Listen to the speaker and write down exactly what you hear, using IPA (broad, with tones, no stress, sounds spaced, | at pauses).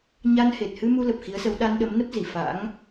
ɲ a˧ n h e˨˩ t̚ h ɨ˧ m u˧ l ə˨˩ p̚ x i˨˦ ə̯ s ə˨˦ w ɗ a˧ n ɗ ə˨˦ m n ə˦˥ p̚ z i˧˩ f a̰˧˥ ŋ